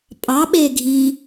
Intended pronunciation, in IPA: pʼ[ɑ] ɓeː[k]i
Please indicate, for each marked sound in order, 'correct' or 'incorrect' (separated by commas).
correct, incorrect